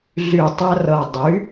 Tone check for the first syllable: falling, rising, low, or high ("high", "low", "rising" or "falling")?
low